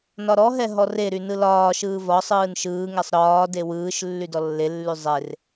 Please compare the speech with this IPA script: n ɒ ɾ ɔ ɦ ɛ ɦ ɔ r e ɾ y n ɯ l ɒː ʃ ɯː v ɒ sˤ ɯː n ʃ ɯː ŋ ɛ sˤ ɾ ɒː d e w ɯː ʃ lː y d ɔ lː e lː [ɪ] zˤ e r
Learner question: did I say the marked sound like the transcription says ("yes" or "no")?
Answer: no